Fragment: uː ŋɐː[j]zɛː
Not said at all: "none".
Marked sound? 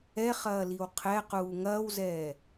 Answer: w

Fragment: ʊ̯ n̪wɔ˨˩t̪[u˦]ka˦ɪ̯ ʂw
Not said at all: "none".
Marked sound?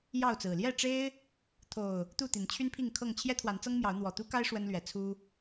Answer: u˦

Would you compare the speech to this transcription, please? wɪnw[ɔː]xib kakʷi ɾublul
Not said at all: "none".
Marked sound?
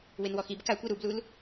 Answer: ɔ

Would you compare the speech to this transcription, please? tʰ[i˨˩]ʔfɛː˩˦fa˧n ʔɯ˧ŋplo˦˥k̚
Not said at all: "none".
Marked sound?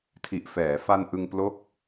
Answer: i˨˩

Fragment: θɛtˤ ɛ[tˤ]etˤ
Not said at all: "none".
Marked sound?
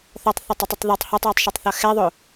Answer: tˤ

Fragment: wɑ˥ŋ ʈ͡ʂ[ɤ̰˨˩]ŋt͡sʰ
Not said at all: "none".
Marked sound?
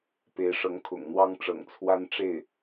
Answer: ɤ̰˨˩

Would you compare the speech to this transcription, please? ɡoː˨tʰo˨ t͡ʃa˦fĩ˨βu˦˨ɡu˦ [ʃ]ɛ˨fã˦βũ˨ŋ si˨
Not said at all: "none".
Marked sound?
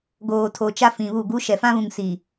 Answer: ʃ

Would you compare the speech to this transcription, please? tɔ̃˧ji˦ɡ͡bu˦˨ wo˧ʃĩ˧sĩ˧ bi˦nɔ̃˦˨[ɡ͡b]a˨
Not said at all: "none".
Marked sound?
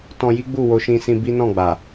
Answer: ɡ͡b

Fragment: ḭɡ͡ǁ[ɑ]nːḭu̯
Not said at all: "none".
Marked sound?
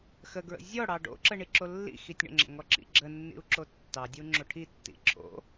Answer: ə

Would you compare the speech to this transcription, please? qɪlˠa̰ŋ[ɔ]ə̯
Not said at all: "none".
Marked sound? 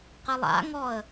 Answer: ɔ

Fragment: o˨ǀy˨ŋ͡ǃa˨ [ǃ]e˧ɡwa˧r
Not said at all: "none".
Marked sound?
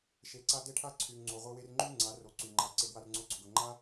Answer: ǀ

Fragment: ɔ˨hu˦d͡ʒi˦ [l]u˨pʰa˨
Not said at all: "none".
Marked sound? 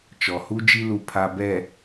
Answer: l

